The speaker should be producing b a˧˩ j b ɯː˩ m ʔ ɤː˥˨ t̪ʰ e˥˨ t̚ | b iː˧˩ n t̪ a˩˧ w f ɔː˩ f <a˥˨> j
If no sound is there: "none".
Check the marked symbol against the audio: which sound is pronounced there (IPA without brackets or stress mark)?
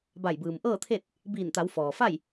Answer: a˥˨